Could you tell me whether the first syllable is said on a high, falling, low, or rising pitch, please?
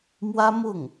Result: high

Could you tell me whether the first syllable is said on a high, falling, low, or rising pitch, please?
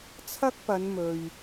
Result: high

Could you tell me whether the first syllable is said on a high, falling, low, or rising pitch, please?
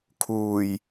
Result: low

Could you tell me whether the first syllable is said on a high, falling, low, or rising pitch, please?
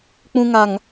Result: high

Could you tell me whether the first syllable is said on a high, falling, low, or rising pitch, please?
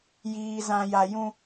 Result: low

